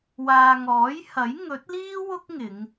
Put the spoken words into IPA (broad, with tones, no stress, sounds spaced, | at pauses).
w aː˨ ŋ ɔː˨˥ j h ɐ˨˥ j ŋ ɵ˨˥ t̚ l iː˥ w ʊ˥ k̚ ŋ ɪ˨˧ ŋ